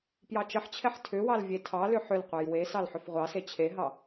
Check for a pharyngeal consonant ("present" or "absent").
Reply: present